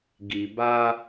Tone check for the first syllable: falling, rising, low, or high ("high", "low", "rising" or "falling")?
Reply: low